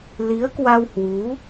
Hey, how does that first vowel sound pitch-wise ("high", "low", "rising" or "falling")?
rising